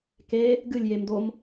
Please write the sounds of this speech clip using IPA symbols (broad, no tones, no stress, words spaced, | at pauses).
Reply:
ke | ɡɨlʲjemdom